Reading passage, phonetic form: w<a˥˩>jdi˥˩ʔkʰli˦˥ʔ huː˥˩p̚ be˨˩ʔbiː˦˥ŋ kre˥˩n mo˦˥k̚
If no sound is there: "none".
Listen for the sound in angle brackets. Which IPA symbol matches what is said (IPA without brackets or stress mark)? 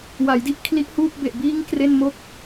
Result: a˩˦